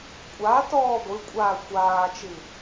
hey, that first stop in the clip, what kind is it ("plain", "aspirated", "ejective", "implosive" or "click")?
ejective